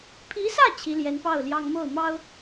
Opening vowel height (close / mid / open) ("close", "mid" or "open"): close